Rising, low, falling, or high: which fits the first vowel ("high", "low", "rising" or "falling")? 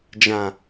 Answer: low